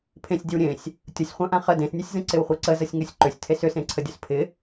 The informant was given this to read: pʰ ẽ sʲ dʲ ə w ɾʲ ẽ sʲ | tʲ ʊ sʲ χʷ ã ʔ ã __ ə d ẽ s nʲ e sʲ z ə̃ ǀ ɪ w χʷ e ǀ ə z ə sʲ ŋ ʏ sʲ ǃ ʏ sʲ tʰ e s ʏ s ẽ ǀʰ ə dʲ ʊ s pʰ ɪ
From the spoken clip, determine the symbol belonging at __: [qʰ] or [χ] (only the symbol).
χ